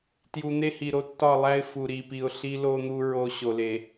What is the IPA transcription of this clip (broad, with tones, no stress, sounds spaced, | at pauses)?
t j u˨ n̪ e˦ h i˨ ɾ o˦ tː ɒ˦˨ lˠ æ˦ ɪ̯ f u˨ ɾ i˨ p i˨ ʊ̯ ɬ i˦ l o˦ n̪ u˦ ɹ o˦ ɕ o˨ l e˨